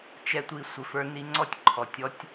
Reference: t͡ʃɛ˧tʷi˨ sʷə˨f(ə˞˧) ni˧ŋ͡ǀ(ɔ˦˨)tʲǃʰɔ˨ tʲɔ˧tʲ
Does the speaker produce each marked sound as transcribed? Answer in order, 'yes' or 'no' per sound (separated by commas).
yes, yes